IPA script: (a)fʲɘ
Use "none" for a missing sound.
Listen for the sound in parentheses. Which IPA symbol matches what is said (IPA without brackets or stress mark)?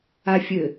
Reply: a